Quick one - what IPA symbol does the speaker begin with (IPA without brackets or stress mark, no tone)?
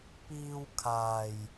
p